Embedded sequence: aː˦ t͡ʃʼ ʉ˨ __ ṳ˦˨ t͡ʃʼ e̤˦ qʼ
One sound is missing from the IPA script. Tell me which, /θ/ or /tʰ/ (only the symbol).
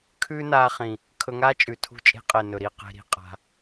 tʰ